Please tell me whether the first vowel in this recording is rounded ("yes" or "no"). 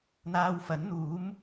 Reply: no